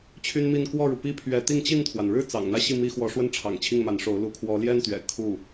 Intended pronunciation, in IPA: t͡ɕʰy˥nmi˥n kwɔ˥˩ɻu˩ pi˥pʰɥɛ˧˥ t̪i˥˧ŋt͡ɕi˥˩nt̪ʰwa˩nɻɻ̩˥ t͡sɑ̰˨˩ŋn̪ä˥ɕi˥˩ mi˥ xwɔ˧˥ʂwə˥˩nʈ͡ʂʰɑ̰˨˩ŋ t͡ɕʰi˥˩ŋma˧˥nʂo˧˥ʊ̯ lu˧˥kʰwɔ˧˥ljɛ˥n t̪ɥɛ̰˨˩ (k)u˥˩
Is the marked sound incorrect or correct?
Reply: incorrect